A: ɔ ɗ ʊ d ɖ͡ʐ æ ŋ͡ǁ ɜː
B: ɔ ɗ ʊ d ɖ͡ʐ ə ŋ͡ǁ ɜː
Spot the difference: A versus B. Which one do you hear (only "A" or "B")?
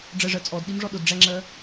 A